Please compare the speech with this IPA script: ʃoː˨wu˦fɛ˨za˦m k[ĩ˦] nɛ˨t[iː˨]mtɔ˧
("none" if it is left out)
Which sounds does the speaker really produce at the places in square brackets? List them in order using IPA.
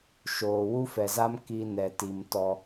i˦, i˨

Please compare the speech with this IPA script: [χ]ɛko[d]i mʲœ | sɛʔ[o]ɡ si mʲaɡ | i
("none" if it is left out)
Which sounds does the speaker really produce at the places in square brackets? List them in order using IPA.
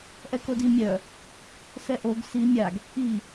ʔ, d, o

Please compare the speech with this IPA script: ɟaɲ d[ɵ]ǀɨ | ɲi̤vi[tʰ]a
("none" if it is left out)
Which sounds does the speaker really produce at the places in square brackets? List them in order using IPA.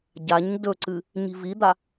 ɵ, d̪

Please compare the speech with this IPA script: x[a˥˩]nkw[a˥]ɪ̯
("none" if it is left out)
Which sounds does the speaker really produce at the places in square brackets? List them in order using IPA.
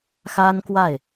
a˥, a˥˩

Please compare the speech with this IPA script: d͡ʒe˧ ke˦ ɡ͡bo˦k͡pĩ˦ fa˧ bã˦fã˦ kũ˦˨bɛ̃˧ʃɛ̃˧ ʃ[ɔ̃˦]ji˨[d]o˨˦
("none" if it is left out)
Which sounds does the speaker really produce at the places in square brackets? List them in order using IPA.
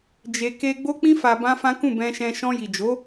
ɔ̃˧, d͡ʒ

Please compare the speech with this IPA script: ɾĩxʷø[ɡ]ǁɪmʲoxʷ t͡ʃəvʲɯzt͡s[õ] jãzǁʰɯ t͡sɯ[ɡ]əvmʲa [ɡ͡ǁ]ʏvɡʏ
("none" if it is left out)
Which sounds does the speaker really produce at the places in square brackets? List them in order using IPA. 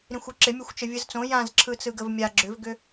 none, õ, ɡ, ɡ͡ǁ

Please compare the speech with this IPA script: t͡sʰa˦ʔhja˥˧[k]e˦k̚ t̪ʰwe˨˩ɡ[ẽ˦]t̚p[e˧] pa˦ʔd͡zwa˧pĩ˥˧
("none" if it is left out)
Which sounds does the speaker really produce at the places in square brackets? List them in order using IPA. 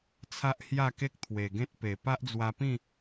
k, ẽ˦, e˨˩

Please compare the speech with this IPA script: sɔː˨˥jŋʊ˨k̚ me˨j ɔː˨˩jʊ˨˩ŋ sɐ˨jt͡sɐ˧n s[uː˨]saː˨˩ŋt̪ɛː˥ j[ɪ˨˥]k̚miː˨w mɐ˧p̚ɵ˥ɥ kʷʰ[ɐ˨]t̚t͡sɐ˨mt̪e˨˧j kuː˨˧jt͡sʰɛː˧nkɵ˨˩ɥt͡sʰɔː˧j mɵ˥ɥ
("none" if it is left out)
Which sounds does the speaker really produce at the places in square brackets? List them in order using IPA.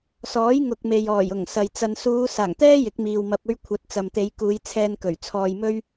uː˨˧, ɪ˨˥, ɐ˨˥

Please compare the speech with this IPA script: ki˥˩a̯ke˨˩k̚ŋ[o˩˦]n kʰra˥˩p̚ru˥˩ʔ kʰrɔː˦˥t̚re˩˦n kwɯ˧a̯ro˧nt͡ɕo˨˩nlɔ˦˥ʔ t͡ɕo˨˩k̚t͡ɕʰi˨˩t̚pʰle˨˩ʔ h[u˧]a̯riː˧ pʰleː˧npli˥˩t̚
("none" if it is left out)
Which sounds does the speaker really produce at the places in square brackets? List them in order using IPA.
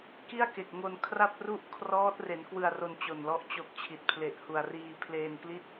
o˧, u˨˩

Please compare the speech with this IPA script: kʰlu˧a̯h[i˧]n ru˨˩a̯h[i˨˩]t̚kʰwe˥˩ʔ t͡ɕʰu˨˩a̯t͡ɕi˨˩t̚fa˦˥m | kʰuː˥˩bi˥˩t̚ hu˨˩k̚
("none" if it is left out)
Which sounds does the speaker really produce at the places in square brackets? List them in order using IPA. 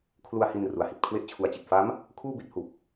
i˧, i˨˩

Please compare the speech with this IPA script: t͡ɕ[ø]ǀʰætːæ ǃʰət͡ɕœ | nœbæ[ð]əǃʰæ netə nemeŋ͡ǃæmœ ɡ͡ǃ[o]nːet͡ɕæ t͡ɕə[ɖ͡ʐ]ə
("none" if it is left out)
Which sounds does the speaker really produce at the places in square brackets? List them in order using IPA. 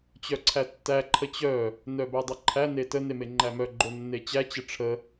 œ, dˤ, o, ʈ͡ʂʰ

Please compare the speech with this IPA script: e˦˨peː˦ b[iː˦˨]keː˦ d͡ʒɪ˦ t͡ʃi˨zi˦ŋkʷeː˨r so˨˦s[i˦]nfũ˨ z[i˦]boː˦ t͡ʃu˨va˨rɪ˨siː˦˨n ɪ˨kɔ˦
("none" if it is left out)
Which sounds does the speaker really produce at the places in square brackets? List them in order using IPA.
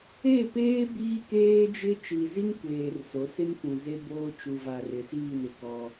iː˦, ɪ˦, e˦

